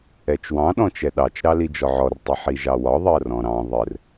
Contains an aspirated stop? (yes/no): no